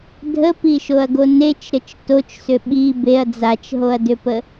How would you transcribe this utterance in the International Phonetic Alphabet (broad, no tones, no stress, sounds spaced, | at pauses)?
dʱ ə p i ʃ o ɐ̯ ɡ o n e t͡ʃ ɾ ə t͡ʃ t o t͡ʃ s ʏ ɓ i b e ɐ̯ d͡z a t͡ʃ ɦ o ɐ̯ d ʏ p ə